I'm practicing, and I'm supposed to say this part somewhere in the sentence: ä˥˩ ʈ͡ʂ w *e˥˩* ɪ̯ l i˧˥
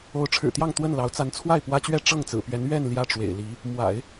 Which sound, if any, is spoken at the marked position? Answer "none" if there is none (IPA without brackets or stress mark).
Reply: ḛ˨˩